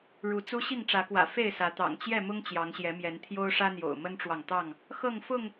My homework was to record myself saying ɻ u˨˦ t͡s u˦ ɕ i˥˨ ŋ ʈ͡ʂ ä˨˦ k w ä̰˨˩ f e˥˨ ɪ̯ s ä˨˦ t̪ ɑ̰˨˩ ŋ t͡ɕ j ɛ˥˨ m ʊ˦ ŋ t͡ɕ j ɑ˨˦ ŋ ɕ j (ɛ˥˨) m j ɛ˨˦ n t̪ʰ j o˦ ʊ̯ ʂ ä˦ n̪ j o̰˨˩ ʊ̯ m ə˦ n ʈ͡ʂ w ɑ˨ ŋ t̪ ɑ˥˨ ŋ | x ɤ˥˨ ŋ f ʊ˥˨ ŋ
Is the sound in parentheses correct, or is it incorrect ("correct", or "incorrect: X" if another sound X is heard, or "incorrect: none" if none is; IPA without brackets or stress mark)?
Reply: incorrect: ɛ˨˦